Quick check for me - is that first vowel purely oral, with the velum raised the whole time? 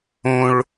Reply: no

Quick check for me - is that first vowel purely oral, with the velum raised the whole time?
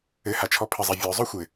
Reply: yes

